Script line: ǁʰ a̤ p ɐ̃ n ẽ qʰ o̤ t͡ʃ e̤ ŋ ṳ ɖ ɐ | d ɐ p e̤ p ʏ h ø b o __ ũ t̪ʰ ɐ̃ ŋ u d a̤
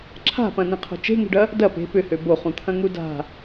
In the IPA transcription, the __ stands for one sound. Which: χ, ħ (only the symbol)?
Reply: χ